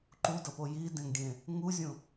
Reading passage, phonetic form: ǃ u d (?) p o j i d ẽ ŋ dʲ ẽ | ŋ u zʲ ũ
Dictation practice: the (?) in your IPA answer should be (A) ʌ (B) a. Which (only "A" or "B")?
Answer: A